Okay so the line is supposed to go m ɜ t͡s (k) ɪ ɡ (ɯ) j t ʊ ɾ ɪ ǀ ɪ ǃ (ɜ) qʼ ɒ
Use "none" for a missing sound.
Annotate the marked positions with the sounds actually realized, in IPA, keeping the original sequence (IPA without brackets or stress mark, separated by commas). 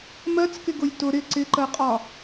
k, ʊ, ɜ